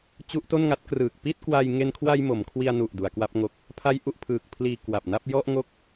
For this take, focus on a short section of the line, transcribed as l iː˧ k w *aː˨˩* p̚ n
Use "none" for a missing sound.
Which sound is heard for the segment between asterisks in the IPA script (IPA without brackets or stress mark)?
a˨˩